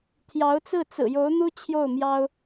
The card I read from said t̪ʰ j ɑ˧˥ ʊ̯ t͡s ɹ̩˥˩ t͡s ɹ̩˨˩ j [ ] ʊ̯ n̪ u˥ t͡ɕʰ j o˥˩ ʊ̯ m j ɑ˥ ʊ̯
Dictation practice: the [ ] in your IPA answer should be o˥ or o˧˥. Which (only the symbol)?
o˧˥